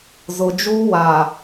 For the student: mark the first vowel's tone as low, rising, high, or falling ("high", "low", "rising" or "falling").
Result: low